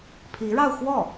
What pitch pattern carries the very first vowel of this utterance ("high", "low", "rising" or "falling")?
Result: rising